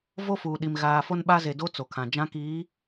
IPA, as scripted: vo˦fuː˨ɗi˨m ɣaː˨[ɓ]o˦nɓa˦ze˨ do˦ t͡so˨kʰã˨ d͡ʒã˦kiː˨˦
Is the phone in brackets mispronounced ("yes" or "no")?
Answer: yes